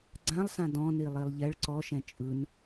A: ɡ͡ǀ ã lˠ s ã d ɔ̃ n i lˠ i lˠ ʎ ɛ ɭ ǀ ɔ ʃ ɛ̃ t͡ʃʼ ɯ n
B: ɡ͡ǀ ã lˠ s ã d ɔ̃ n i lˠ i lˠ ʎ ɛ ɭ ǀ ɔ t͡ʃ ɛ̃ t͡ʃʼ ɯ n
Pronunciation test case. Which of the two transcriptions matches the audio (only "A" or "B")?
A